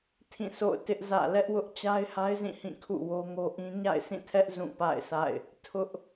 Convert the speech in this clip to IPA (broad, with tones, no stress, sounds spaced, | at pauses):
tʰ ĩ˦˨ sʰ o̰˦˨ ʊ̯ t ɪ˦ ʔ z ä̰˦˨ l ɛ˦ ʔ w ʊ˦ ʔ t͡ɕ a˦ ɪ̯ h a˦ ɪ̯ z ĩ˦˨ h ĩ˦˨ kʰ ṵ˦˨ w o˦ ŋ o˦ ʔ ĩ˦ ɲ a̰˦˨ ɪ̯ sʰ ĩ˦˨ tʰ ɛ˦ ʔ z ũ˦˨ p a̰˦˨ ɪ̯ sʰ a̰˦˨ ɪ̯ | tʰ ʊ˦ ʔ